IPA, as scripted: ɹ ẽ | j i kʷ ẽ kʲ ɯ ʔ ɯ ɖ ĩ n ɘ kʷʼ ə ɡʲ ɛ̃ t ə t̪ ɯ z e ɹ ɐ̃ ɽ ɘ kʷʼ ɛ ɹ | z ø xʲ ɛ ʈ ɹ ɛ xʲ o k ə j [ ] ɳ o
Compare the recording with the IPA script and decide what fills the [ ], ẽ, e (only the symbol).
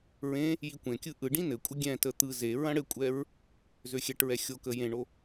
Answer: ẽ